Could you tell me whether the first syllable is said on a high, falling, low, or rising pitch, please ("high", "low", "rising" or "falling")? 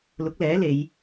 rising